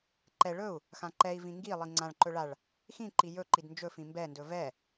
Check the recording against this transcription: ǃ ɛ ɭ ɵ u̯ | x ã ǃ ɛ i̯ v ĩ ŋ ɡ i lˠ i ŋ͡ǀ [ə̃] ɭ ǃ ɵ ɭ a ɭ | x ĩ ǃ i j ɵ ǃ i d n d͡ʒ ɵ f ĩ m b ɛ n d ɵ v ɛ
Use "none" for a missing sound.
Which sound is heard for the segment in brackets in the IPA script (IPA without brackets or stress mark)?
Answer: ã